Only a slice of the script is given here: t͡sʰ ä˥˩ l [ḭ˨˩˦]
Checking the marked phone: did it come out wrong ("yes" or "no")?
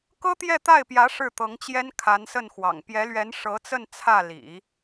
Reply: no